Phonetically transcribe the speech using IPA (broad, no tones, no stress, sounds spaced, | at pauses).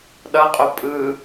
ɗ ʌ qʼ o pʼ ɯ